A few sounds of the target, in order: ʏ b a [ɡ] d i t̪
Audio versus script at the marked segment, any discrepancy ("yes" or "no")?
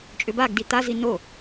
no